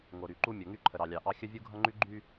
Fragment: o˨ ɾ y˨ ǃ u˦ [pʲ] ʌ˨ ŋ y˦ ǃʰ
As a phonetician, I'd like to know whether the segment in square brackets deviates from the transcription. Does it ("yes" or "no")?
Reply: yes